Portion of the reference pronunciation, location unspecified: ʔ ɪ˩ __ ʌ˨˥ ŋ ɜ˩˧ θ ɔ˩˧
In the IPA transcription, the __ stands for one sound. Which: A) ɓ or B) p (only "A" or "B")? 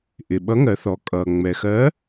A